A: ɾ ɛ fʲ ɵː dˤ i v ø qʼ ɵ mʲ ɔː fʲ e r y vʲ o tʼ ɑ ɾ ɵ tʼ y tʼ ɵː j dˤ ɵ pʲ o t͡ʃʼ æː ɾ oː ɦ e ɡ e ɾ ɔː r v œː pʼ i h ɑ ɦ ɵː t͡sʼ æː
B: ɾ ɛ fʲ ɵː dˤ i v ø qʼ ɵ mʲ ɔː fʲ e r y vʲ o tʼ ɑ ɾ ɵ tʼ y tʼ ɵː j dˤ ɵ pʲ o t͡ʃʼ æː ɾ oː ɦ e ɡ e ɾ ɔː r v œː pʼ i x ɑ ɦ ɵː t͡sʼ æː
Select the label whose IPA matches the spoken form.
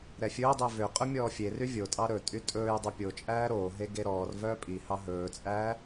A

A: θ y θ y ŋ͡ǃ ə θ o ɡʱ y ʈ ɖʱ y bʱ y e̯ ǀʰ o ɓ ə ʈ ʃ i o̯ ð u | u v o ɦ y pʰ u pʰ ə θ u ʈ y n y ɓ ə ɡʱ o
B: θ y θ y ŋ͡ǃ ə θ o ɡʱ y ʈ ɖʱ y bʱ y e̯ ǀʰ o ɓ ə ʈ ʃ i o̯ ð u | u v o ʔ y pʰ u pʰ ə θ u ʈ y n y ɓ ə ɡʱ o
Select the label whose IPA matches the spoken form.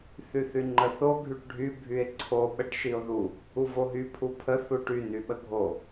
A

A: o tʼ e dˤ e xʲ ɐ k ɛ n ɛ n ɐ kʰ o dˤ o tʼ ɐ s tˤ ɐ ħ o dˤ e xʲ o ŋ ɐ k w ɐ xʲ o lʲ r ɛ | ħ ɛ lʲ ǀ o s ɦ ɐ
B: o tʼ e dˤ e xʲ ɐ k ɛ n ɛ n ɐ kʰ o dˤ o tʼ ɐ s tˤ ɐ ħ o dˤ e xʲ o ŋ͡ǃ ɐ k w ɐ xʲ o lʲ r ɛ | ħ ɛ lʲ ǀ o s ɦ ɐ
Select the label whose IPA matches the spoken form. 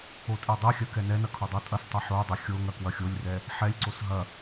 A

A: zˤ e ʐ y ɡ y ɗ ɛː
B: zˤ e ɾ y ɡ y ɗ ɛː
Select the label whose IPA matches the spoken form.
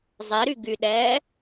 B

